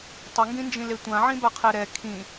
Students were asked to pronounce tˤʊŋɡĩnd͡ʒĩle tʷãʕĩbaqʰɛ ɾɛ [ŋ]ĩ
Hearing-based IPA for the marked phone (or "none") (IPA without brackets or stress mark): kʰ